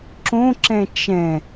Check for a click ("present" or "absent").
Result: present